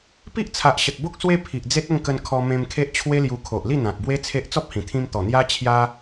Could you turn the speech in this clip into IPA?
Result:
p i˦ ʔ t͡sʰ a˨ ʔ ɕ ə˨ t̚ b o˦ k̚ s w e˧ pʰ i˨ ʔ d͡z e˦ t̚ ə˥˧ ŋ k ə˧ n kʰ ɔ˧ m ẽ˧ m kʰ e˦ ʔ t͡ɕʰ w e˦ l j u˧ kʰ o˨ ʔ l i˥˧ n̪ ã˨ k̚ b w e˦ t͡sʰ e˦ ʔ t͡s ɔ˦ p̚ h ĩ˨˩ t̪ʰ ĩ˧ m t̪ ɔ˨˩ n̪ j a˦ t͡ɕʰ j a˦

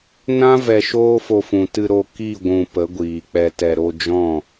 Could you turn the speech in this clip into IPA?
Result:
n ã˦ v ɛ˧ ʃ oː˦ f o˧ f ũ˨ t ɨ˧ ɾ o˧ k i˦˨ ɡʷ ũ˨ p ə˨˦ ɡʷ iː˨ k͡p ɛ˧ t ɛ˧ ɾ o˧ d͡ʒ ɔ̃˦˨

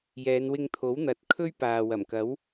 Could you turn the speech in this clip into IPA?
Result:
j ɛː˨˧ n w ɪ˧ ŋ t̪ʰ o˨˥ w n̪ ɐ˨˥ t̚ kʰ ɵ˥ ɥ p aː˨ w ɐ˨˩ m k ɐ˨˥ w

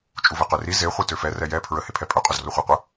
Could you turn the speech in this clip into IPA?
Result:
t͡ʃʼ u v ɛ q ø r i z e χʷ i t ø f ɛ r ɛ j ɛ pʰ ɹ ə h e pʰ ɛ pʼ ø qʼ o z r o χʷ ɛ qʷ ə

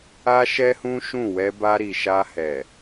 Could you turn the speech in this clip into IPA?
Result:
a˦ ʃ ɛ˦ h ũ˦ ʃ ũ˦˨ w ɛ˧ b a˧ ɾ i˨ ʃ a˧ h ɛ˨

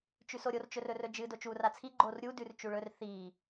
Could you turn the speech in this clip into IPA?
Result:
t͡ʃ ʉ s o ɾʲ o r t͡ʃ ɵ r ɵ r ɵ d͡ʒ ɨ d o t͡ʃ u r a t͡sʰ i ɡ͡ǃ o r ɾʲ u d ʉ r t͡ʃ u ɭ ɵ r θ i

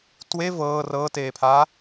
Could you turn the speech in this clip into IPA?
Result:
t w e v ɤː r ɤː t eː pʰ aː

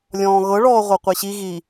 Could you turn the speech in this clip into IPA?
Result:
lʲ ɔ̃ː ɣ ɤ ɭ ɔː ʁʷ ɤ qʷ e ɕ i ɣ i

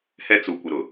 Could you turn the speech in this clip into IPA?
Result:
h ɛ˦ t͡s u˨ kʷ ɪ˨ ɾ ʊ˨

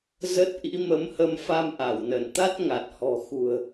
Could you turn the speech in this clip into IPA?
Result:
z ə˦˥ t̚ ʔ ḭ˧˥ m ə˨˦ m h ə˧ m f a˧ m ʔ a˧˩ w n ə˧˩ n t̪ a˦˥ t̚ ŋ a˨˩ t̚ h ɔ̤˨˩ x ṳ˨˩ ə̯

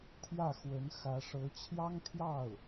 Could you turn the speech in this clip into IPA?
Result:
t̪ʰ j ä˥˩ x w ə˧˥ n x ä˧˥ ʂ ɤ˧˥ t͡ɕʰ j ɑ˥ ŋ t̪ʰ j ɑ˥˩ ʊ̯

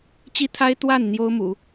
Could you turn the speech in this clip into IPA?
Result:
t͡ɕ i˥ t̪ʰ a˥ ɪ̯ t̪ w a˥˩ n n̪ j o˥ ʊ̯ m ṵ˨˩˦

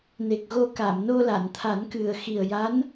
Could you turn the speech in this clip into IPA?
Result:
n e˨˩ k̚ ɣ o˧ k a˨˩˨ m n o˧ l a˨˩˨ n t̪ʰ a˨˩˦ n k ɨ˨˩ ə̯ x i˨˩ ə̯ j a˧˥ n

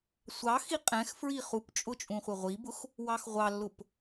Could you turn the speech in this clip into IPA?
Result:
sʷ ɑ x i qʼ ɛ̃ x f ɹ i χ u p t͡ʃʼ ʊ t͡ʃʼ ũ χʷ ə ʁʷ i b ʊ x | w ɑ x ʁʷ ɑ lː ʊ p

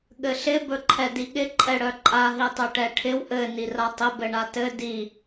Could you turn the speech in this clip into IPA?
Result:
ɠ ɘ ɬ ɪ b ɵ ǃʰ ɛ d i ɠ ɪ ǃʼ ɛ ɽ œ ǃʼ a ɦ i tˤ ɵ ʈ ɛ ʈʰ ɪ w ʔ ɘ n i r a tˤ ɪ b ɘ ɳ a t ɘ d i

